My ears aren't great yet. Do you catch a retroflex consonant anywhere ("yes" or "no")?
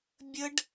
yes